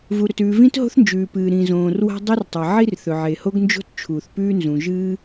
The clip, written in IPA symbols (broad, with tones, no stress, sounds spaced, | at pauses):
v u˩ ɾ ɵ˩ t ʉː˩ v ĩ˥ t ɦ o̤˥ θ n d͡ʒ ʉː˩ p ɨː˩ ɾ ĩ˩ z õː˩ r w a̤˥ dˤ e˥ r tˤ ɐ˩ ʕ i˥ r θ ɵ˩ ʕ e˩ h o˥ ɡ n d͡ʒ o̤˥ t t͡ʃʰ uː˩ θ p ʉː˥ n z ũ˩ ʒ ɨː˥